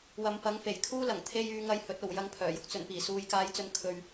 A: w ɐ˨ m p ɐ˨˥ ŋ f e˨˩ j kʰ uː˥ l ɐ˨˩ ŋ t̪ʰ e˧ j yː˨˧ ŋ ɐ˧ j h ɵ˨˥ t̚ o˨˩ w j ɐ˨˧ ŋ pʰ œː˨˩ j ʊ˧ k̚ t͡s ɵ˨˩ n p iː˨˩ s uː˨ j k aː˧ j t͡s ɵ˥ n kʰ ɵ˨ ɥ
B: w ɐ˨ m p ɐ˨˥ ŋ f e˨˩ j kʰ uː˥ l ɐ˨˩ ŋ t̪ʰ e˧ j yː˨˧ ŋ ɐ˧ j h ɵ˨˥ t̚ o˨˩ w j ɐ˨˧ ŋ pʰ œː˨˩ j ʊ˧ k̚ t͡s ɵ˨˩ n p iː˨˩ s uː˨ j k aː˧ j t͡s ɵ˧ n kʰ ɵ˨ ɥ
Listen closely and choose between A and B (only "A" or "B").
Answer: B